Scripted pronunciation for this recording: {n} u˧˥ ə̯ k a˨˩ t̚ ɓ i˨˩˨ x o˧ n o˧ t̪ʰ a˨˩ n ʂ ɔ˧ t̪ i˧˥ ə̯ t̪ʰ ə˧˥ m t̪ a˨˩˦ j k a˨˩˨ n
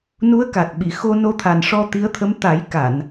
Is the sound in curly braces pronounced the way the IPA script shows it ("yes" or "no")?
yes